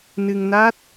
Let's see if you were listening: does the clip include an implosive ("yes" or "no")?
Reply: no